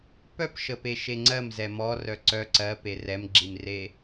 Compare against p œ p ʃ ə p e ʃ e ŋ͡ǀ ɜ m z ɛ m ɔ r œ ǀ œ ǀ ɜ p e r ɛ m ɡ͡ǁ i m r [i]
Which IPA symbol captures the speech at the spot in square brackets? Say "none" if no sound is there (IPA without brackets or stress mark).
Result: e